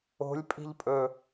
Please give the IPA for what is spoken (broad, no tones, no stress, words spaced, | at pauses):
o̤lʲ pʼi̤ʎpʼɵ